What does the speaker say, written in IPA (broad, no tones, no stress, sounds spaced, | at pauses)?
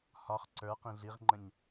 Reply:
h ɒ χ ǀ ə˞ q ĩ ɮ i ʁ ŋ͡ǃ ə̃ ɲ